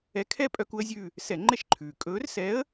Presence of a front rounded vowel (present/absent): present